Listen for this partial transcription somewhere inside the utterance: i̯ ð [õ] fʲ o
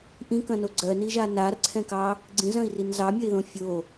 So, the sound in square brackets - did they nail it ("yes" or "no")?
yes